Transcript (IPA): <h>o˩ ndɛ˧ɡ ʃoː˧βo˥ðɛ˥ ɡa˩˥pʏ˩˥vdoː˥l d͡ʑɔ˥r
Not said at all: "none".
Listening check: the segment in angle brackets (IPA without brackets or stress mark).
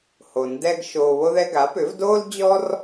h